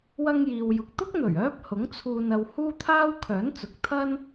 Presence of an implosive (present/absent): absent